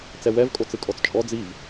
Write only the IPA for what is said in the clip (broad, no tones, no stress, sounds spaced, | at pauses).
t͡s ɛ w ɛ v kʼ o t͡s ɯ kʼ ɔ t͡s t͡ʃʼ ɔ d͡z i v